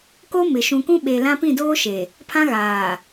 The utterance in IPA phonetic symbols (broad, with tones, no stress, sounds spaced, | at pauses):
k o˦ m ɪ˨ ʃ ũ˨ k ũ˦ ɓ e˨ l ã˦ p ĩ˦˨ d oː˦ ʃ e˨ | pʰ ã˦ ɣ aː˨